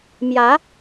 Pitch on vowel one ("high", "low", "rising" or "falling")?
rising